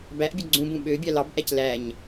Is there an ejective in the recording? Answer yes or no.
no